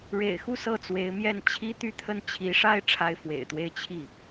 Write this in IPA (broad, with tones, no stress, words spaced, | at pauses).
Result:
ɻḛ˨˩ɪ̯xu˥˧ sɤ˥˩t͡swe˧˥ɪ̯mjɛ˥˩n t͡ɕʰi˥t̪y˥˧t̪ʰə˥˩n t͡ɕʰi˧˥ʂa˥ɪ̯ ʈ͡ʂʰa˥ɪ̯fwḛ˨˩ɪ̯t̪we˥˧ɪ̯ t͡ɕʰi˥˩